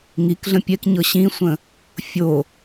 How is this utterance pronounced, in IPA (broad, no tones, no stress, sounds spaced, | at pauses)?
ŋ i k ɮ ə̃ pʲ ɛ k ɲ ɤ ɕ ĩ sʷ ə̃ | fʲ o